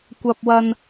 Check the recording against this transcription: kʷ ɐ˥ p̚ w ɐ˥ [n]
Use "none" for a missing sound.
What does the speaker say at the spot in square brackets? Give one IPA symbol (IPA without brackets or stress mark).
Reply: n